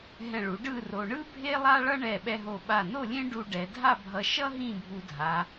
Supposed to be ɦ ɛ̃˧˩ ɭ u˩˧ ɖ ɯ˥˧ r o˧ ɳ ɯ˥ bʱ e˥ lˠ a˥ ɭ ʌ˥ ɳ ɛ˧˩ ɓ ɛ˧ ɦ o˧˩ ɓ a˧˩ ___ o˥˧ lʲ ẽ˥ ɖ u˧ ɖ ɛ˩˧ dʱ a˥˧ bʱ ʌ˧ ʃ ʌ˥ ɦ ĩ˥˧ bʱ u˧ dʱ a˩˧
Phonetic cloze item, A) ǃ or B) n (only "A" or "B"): B